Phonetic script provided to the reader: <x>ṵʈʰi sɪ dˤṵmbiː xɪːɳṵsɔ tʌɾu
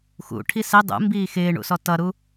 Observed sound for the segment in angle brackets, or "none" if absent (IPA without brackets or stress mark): x